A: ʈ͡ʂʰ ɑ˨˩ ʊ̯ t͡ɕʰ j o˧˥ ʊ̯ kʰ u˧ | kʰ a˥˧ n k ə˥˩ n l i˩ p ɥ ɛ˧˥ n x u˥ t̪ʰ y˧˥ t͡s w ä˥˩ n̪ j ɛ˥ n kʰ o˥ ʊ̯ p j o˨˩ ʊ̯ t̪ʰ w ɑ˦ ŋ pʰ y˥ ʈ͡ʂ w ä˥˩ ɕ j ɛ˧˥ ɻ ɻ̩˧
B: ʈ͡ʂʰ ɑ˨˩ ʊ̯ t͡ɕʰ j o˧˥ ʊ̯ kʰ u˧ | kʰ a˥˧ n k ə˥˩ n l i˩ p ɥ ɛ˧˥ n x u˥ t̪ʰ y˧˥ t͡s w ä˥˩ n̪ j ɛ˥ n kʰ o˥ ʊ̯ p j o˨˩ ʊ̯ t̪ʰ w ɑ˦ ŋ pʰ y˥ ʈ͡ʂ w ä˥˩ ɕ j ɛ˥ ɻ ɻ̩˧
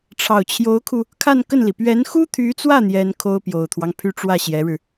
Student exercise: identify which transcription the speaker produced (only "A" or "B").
A